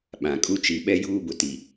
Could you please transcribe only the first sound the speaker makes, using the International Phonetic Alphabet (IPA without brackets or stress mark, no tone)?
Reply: ɓ